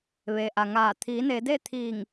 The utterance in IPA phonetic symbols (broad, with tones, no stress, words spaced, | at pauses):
ʋe˩ʔa˩ŋaː˧˩ t̪ʰiː˩˧ne˩˧de˥˨ t̪ʰiː˧˩ŋ